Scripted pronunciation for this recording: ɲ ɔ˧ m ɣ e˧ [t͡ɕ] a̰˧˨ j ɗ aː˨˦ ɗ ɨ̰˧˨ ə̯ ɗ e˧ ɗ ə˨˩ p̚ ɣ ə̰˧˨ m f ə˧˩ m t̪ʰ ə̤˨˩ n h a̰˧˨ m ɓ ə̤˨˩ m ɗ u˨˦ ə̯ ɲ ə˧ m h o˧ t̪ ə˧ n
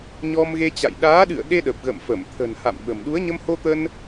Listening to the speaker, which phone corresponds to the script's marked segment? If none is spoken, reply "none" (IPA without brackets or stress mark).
t͡ɕ